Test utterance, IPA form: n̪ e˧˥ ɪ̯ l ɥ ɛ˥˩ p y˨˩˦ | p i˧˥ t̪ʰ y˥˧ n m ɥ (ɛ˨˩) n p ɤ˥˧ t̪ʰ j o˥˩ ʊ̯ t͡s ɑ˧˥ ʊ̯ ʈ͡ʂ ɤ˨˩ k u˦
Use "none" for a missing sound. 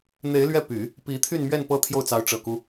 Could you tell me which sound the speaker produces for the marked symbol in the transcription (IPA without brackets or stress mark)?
ɛ˥˧